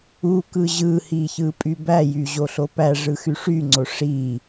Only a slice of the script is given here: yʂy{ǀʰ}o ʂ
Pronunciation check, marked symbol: incorrect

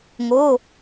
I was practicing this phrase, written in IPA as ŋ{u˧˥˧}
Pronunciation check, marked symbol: incorrect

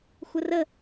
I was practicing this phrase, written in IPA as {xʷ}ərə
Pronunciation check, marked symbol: correct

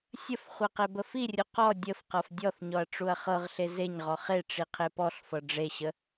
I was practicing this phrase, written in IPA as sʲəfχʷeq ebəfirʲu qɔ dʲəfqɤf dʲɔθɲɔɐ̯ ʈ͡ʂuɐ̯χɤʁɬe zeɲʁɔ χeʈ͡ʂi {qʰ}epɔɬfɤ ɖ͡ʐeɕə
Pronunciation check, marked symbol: correct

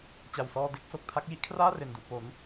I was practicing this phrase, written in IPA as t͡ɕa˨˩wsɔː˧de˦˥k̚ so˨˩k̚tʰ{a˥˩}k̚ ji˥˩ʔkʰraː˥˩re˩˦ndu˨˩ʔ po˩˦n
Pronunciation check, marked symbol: correct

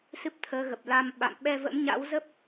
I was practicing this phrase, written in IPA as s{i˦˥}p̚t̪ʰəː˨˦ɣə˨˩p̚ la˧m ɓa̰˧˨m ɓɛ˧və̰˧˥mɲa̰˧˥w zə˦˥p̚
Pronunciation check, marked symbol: incorrect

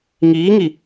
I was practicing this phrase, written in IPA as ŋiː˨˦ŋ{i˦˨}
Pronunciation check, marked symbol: incorrect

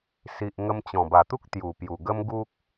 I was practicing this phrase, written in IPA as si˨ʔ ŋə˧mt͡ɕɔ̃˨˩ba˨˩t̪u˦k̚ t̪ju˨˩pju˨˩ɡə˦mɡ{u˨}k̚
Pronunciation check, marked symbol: incorrect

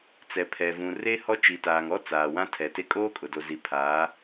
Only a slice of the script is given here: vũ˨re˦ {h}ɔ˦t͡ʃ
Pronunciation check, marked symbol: correct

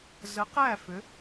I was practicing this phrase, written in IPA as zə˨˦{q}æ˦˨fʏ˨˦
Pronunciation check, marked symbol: correct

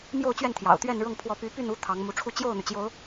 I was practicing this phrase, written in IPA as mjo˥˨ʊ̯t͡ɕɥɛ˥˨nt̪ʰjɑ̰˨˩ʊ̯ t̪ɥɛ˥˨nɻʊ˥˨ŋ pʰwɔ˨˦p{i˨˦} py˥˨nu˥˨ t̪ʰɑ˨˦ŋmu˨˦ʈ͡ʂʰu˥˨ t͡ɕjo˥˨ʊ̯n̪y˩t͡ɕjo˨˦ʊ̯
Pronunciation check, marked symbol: incorrect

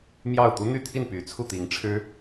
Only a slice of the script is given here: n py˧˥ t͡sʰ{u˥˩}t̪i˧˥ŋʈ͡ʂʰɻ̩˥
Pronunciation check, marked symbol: correct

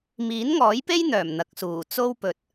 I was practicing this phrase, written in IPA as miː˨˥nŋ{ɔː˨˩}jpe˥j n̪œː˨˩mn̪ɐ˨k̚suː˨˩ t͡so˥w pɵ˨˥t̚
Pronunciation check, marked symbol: incorrect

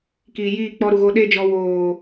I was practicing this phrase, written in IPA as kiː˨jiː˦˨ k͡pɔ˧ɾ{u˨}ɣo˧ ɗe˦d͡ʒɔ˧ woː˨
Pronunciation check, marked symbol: correct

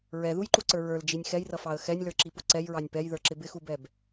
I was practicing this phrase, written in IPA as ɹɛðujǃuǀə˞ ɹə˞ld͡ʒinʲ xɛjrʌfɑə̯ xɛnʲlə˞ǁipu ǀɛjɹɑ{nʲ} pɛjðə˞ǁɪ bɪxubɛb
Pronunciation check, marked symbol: correct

